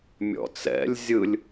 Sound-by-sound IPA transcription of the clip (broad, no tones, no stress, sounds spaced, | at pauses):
mʲ ɔ̰ t͡s ɛ̰ lʲ zʲ ɯ lʲ